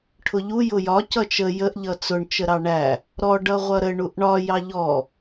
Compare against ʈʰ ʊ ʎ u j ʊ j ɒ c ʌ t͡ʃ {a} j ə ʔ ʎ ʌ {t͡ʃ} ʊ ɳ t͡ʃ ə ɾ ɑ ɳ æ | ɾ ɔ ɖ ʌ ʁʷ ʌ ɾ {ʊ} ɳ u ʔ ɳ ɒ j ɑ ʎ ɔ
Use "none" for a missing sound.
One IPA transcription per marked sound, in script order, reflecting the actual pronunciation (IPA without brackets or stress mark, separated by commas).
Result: ə, t͡s, ə